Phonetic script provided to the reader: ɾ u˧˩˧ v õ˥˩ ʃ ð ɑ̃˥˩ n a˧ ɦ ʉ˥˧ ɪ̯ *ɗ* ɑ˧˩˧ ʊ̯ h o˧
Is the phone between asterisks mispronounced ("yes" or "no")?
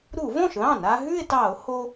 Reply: yes